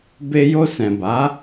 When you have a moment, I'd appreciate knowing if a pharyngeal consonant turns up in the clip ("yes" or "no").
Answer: no